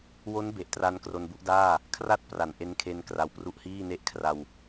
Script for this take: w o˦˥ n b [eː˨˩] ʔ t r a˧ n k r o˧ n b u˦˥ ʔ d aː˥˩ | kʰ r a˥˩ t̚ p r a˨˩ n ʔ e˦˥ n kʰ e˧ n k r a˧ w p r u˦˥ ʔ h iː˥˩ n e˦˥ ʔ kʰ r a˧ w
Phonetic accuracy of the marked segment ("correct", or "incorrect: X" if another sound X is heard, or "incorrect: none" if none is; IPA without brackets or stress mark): incorrect: e˨˩